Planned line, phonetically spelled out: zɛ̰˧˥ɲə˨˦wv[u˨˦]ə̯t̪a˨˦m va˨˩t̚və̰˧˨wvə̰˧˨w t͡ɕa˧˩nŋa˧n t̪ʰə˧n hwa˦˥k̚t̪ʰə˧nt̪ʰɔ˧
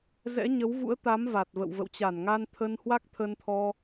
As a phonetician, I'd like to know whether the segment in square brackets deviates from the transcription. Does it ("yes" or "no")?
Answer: yes